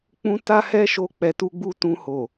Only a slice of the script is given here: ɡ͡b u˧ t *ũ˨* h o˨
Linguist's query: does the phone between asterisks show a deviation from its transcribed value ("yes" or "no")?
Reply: yes